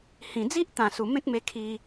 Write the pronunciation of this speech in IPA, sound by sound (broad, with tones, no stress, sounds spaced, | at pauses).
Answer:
h ĩ˨˩ d͡z i˦ ʔ t̪ ã˨˩ s u˨˩ m ẽ˦ k̚ m e˧ kʰ i˧